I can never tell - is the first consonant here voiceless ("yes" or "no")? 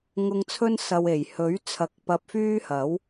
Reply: no